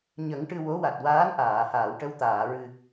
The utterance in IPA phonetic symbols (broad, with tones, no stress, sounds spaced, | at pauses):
ɲ ə˨˩˦ ŋ ʈ ɨ˧ w o˧˥ w a˨˩ t̚ w aː˧˥ n ʔ aː˨˩˨ h aː˨˩˨ w ʈ ə˧ w t̪ aː˨˩˨ ɹ ɨ˨˩